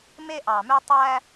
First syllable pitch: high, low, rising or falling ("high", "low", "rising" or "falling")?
high